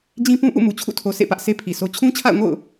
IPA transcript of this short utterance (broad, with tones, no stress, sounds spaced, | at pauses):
d͡ʑ ĩ˦ p ũ˦ ʔ ṵ˦˨ m u˨ t͡ɕʰ ṵ˦˨ tʰ o˨ s ḛ˦˨ p ä˦ ʔ s e˦ pʰ i˨ s o˦ t͡ɕʰ ũ˦ t͡ɕʰ a̰˦˨ ʊ̯ ŋ o̰˦˨ ʊ̯